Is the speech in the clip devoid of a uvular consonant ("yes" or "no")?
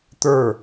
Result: yes